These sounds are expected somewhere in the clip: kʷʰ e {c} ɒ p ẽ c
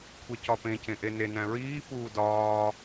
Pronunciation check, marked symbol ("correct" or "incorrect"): correct